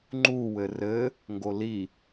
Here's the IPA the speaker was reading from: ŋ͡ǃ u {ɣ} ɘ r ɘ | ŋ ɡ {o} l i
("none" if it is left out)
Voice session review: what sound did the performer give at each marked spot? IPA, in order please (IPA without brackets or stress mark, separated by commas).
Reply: w, o